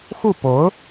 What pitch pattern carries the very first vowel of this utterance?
falling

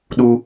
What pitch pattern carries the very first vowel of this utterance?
high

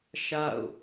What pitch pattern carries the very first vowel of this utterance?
falling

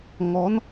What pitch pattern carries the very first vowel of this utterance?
rising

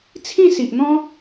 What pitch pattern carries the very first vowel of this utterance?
falling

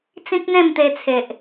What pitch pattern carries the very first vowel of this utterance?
high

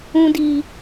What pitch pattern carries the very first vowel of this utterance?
low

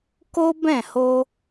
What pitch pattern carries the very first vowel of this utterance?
high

